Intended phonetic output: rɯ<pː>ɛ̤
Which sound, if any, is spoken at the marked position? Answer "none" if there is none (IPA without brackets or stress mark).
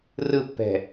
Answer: pː